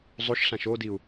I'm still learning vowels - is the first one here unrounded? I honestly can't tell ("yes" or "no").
no